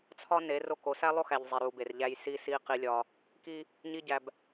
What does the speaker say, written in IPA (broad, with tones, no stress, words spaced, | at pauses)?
t͡sʰɒ˦ ne˨˦ro˦˨k o˨sæ˦lˠo˦xæ˨ʎ zˤi˨ɾu˨be˨rʎæ˦j si˦si˦ qi˦lʲɒ˦ | ki˦ | ɲi˦ɟæ˨b